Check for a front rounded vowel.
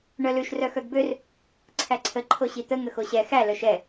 present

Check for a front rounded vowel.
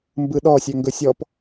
present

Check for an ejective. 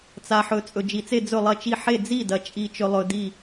present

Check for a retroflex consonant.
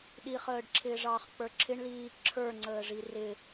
present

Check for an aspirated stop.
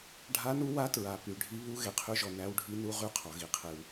present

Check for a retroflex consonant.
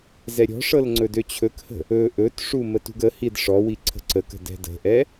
present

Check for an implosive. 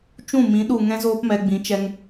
present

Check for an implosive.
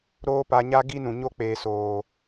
absent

